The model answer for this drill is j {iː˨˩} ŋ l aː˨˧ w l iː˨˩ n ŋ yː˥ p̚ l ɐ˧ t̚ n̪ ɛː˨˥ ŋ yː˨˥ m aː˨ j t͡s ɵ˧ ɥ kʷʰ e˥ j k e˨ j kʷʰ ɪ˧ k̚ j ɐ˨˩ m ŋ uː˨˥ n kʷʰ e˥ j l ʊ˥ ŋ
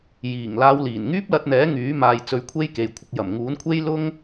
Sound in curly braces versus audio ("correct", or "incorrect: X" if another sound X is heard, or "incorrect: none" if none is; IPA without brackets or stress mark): correct